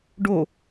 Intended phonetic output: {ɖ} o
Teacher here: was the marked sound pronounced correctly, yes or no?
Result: yes